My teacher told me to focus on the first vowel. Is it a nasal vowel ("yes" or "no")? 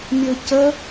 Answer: no